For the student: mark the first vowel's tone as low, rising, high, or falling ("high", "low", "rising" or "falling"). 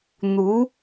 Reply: rising